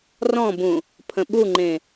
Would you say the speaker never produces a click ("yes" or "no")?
no